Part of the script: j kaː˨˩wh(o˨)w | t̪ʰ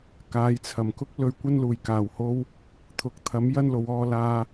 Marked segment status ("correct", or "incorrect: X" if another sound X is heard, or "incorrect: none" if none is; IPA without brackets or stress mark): incorrect: o˧